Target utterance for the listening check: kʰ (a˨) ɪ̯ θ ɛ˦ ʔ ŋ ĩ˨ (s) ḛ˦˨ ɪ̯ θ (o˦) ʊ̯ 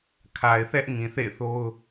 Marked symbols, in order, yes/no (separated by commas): yes, no, yes